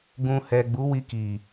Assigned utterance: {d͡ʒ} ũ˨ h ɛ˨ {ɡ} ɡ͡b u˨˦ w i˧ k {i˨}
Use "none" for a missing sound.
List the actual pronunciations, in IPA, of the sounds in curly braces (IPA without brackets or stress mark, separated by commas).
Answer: ɡ, none, i˨